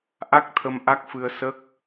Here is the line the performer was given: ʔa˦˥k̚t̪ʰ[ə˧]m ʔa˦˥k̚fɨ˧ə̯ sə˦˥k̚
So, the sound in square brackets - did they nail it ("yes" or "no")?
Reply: yes